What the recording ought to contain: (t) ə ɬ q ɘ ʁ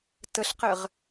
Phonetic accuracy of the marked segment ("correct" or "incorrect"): correct